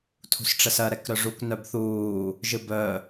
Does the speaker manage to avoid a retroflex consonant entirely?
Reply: no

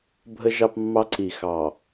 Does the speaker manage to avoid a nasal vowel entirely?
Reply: yes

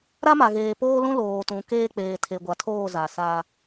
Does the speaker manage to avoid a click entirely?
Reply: yes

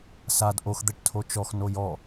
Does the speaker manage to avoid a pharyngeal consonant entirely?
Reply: yes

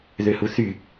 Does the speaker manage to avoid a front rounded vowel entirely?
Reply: no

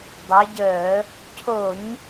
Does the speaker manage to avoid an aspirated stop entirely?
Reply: no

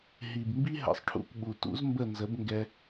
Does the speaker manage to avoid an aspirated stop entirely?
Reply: no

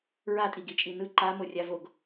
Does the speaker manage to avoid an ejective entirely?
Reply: no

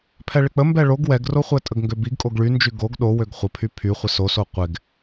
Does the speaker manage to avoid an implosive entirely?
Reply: no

